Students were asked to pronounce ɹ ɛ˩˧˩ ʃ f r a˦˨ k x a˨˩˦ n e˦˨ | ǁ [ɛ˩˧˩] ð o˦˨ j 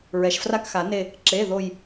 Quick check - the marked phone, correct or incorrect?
incorrect